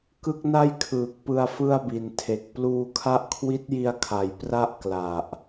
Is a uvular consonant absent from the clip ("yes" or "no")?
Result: yes